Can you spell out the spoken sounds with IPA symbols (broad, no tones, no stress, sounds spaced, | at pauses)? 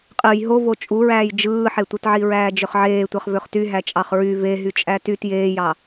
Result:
qʼ ɯ j ɦ o v o t͡ʃʼ u ɹ æː j d͡ʒ ɯː ħ e tʷ ɯ t ʕ i ɹ æː d͡ʒ ø χ ʕ eː tʷ ɑ χ v ø χ t y ɦ æ t͡ʃʼ ɑ χ ɹ y v e ɦ y t͡ʃʼ æ t y t j eː j ɑ